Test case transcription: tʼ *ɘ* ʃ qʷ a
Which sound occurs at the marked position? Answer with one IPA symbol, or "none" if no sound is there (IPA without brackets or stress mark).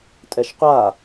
ɛ